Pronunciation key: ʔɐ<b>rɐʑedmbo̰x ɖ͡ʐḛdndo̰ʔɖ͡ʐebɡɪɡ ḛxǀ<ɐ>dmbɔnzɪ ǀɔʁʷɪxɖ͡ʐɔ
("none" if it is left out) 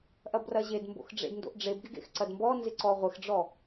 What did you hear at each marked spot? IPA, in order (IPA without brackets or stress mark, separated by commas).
b, ɐ